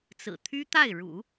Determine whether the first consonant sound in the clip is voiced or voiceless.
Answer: voiceless